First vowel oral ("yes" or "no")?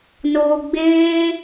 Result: yes